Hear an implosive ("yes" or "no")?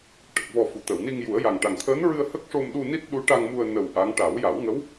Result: yes